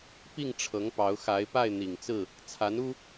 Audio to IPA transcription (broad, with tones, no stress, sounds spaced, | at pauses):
p i˥˨ ŋ ʈ͡ʂʰ ɤ˨˦ ŋ p ɑ˨˦ ʊ̯ x a˨˦ ɪ̯ p a˥˨ ɪ̯ n̪ i˨˩ ŋ t͡s ɹ̩˥˨ | t͡sʰ a˨˦ n u˦